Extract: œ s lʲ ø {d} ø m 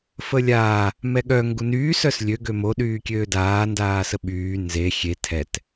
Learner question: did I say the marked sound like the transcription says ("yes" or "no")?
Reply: no